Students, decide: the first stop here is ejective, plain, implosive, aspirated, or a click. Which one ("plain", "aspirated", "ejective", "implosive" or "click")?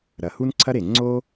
click